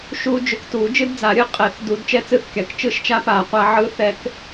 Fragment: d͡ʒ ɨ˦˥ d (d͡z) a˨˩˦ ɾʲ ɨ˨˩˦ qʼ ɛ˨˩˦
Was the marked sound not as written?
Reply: no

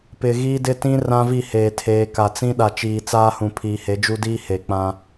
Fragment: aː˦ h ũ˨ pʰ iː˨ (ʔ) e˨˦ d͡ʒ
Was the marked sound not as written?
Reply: yes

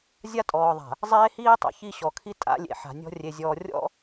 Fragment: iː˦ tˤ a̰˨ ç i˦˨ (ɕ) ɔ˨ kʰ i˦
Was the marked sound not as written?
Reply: no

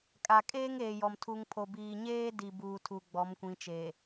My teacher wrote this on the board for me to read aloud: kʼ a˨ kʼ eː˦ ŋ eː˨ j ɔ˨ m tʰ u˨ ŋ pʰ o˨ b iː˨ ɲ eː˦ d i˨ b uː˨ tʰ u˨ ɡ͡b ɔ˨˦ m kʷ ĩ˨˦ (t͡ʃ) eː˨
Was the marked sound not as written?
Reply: no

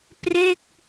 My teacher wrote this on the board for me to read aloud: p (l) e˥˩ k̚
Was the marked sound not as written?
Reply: yes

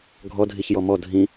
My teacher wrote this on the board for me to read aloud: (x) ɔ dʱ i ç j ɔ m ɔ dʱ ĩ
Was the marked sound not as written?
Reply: yes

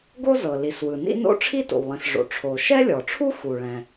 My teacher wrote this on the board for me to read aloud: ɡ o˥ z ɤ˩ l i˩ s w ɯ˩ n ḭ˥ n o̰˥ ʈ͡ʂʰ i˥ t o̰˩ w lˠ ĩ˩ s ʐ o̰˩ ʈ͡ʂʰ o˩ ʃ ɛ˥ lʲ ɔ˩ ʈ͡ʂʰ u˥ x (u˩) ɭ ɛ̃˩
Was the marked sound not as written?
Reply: no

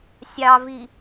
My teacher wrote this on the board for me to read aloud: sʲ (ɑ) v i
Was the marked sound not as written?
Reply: no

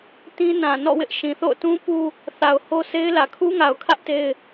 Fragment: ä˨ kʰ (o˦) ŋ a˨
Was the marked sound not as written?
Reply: yes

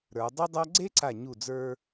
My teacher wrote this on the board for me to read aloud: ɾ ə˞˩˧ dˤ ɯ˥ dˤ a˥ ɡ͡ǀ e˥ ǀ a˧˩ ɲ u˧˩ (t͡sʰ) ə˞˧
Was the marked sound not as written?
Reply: yes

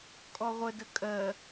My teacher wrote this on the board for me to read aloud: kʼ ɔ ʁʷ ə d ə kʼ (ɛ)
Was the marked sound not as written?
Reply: yes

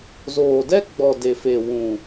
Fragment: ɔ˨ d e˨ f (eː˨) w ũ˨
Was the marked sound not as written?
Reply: yes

